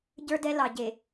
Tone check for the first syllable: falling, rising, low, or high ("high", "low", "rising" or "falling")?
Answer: high